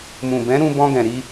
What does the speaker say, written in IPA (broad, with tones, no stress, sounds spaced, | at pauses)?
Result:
m ũ˨ b ɛ̃˨˦ ɾ ũ˧ b ɔ̃˧ ɡ ɛ̃˨ ɾ i˧